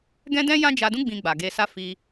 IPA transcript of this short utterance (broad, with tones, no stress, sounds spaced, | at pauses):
ɡ ɛ̃˦ d ɛ̃˦ j ã˦ d͡ʒ a˧ d ũ˦ ɡ͡b ĩ˧ ɡ͡b a˨ ɡ e˧ s a˦ f i˧